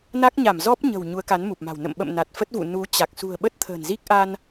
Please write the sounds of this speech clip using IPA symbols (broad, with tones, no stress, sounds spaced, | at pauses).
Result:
n a˦˥ k̚ ɲ a˧˩ m z ɔ˦˥ p̚ ɲ ə̤˨˩ w ɲ u˨˦ ə̯ k a˨˦ n m u˨˩ p̚ m a̤˨˩ w n ə̰˧˨ m ɓ ə̰˧˨ m n a˨˩ t̚ f ə˦˥ t̚ v ṵ˧˨ n u˨˦ t͡ɕ a˨˩ k̚ s ṳ˨˩ ə̯ ɓ ə˦˥ t̚ t̪ʰ ə̤ː˨˩ n z i˦˥ k̚ ʔ a˧ n